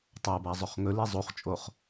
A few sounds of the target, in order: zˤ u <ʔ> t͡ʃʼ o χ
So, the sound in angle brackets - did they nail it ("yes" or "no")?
no